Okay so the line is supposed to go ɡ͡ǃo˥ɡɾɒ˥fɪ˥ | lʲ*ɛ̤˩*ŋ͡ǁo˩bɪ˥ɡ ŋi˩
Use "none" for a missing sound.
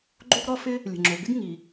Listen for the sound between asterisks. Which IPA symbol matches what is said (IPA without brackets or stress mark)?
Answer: ə̤˩